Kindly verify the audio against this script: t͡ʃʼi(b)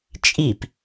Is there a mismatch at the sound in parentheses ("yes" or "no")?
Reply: yes